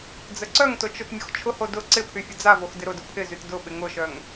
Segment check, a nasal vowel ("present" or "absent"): absent